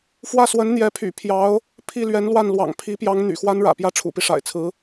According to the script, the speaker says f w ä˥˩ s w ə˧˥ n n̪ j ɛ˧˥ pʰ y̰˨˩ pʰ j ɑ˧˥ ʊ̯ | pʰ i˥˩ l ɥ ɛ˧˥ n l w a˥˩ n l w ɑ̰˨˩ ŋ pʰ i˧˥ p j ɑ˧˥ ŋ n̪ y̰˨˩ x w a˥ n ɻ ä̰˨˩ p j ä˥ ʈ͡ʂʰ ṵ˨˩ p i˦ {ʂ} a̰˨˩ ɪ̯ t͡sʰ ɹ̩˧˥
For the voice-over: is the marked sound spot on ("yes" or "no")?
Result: yes